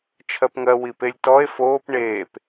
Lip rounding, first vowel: unrounded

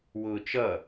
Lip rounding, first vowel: rounded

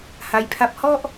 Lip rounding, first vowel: unrounded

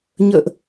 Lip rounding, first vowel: unrounded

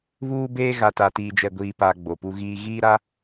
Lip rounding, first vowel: rounded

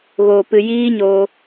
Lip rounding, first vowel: rounded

